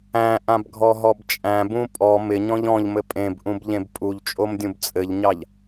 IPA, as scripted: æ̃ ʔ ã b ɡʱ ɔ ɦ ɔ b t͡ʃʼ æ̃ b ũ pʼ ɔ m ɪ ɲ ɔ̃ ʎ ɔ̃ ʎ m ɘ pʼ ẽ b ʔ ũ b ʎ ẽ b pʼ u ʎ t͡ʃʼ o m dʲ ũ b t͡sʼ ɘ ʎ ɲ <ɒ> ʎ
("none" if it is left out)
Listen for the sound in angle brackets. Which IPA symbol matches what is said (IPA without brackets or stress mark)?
ɑ